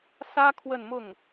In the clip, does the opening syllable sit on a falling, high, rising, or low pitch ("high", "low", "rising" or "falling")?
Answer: high